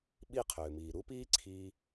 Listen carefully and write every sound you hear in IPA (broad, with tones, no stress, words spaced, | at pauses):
ɓi˦˨ qʰʏː˨miː˨ ɾu˦piː˦ǀʰiː˧